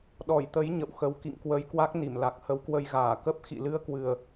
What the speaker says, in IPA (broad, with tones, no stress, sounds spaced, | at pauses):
ɗ ɔ˧˩ j t̪ ə˨˦ j ɲ ə̰˧˨ w x ə˨˦ w k ḭ˧˨ ŋ k w ə˧ j k w a˦˥ k̚ n i˧˩ m l a˨˩ k̚ h ə˨˦ w k w ə˧ j ɣ aː˧˩ k ə˦˥ p̚ x ḭ˧˨ l ɨ˧ ə̯ k w ɨ˨˩ ə̯